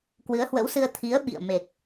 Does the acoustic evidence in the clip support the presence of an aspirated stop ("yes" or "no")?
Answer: yes